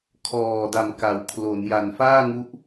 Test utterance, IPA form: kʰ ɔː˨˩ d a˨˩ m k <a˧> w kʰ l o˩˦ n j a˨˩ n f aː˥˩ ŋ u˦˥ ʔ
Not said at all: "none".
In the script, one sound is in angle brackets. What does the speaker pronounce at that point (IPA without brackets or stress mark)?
a˩˦